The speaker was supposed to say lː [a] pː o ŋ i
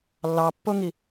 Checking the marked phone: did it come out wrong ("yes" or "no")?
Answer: yes